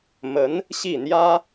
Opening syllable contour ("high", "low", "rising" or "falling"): rising